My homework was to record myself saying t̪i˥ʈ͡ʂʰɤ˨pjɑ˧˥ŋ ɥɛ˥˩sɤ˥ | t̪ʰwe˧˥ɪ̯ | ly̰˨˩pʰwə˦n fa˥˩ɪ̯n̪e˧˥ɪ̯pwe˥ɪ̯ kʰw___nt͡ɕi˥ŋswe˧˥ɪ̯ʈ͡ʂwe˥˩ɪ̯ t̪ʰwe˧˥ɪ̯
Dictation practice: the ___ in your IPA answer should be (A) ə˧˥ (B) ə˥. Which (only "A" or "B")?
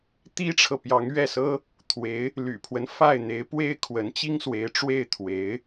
A